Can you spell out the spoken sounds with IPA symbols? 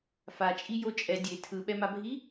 f a t͡ʃʼ i j o t͡ʃʼ ɛ dʲ e tʰ ɯ ɓ ɛ m a bʱ i

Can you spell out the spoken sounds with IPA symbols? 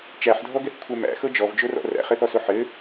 t͡ʃ æ ħ dʱ ɔ ɡ ɛ θ kʷʰ ɛ m æ̰ x ɤ d͡ʒ ɔ v d͡ʒ o r ɔ̰ r æ̰ χ ɘ θ ɔ s o ħ ɘ

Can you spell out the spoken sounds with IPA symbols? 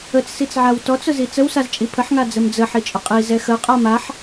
ə t͡s s i t͡s ʕ a w t ɔ t͡s ʊ z i t͡s ə w s a z t͡ʃʼ i pʰ ə ħ ŋ a d͡z ə m d͡z ə ħ i t͡ʃʼ ʊ qʼ i z ɛ x ə qʼ a m a ħ

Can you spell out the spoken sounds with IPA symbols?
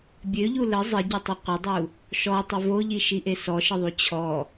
bʲ ø ʎ u l ə zˤ ɪ ɟ ɪ tˤ ə qʷ ɪ dˤ u | ʃ ɔ tˤ ə v o ʎ i ʃ i ʔ e s ɔ ʃ ɪ ðˤ u t͡ɕʰ ɔ

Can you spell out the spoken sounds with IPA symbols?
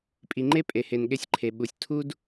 pʼ i˨ ŋ͡ǃ e˦ pʼ e˨ h e˨ n ɠ e˧ sʲ ǃʰ e˨ ɓ u˨ sʲ tʰ u˦ d

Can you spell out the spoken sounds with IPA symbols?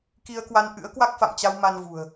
k i˧ ə̯ k w a˧ n ʔ ɨ̰˧˥ ə̯ k w a˦˥ k̚ f a̰˧˨ m t͡ɕ a˧ w m a˧ n v ṳ˨˩ ə̯

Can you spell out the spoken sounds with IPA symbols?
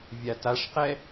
vʲ a t a ʂ q ɛ

